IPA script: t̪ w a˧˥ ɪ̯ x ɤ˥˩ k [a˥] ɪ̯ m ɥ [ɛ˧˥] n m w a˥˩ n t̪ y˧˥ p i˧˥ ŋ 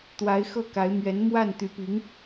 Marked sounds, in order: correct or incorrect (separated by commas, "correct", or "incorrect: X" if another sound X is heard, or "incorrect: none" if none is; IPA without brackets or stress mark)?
incorrect: a˧˥, correct